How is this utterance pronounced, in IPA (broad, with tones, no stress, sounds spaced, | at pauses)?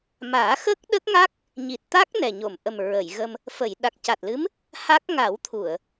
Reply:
m aː˨˩˦ x ə˦˥ k̚ ɗ ə˦˥ k̚ ŋ a˦˥ k̚ | ɲ i˨˩ t̚ t̪ a˦˥ k̚ n ɛ˨˩ ɲ o˨˩˨ m ʔ ə˨˩ m ɹ ə˨˩˨ j ɣ ə˧ m | f ə˨˩˨ j ɗ a˨˩ k̚ c a˨˩ t̚ l ɨ˧˥ m | h a˦˥ k̚ ŋ a˨˩˦ w t̪ʰ u˨˩˨ ə̯